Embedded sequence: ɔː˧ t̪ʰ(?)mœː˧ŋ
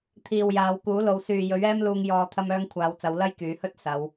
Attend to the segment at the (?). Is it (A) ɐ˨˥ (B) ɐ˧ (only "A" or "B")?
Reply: B